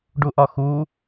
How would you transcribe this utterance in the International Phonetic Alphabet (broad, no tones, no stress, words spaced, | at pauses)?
ɖuʔɒxu